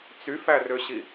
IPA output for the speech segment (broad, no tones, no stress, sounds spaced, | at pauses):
t͡s y f æ r ø ɕ i